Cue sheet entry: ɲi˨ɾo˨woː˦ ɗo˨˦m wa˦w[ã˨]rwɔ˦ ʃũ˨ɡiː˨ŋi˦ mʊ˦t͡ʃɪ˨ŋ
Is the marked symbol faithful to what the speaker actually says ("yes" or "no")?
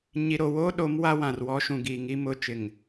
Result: yes